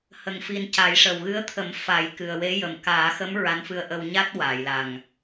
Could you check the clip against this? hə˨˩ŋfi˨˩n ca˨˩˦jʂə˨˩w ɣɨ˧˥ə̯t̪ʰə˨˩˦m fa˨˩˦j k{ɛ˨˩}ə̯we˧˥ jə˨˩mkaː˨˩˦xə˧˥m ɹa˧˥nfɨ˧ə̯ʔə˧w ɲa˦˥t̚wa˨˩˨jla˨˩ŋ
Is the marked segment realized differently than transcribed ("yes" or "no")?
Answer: yes